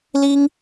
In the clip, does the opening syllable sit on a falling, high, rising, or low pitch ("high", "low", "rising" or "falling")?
high